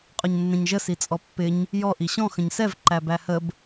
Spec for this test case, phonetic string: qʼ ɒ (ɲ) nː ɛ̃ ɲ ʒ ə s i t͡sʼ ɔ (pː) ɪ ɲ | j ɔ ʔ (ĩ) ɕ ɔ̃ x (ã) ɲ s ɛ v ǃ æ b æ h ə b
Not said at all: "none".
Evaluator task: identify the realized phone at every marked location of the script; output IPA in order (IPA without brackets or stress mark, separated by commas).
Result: ɲ, pː, i, ə̃